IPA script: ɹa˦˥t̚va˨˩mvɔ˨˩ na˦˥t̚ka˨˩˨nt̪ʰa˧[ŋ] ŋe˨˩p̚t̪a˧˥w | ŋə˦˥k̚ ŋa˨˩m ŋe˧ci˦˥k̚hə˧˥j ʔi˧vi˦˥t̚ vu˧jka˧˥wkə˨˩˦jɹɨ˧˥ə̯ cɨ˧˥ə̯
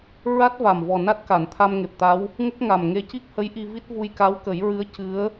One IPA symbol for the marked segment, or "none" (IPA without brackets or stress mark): m